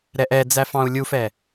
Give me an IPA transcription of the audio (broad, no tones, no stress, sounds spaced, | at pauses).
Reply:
ɾ ɛ ʔ ɛ d͡z æ f ɑ̃ u̯ lʲ u f ɛ